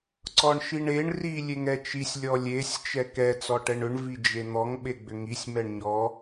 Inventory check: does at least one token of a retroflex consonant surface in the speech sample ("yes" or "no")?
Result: yes